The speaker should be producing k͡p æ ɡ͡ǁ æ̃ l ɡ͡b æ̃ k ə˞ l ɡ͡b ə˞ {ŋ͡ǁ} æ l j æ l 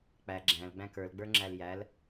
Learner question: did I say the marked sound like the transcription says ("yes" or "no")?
yes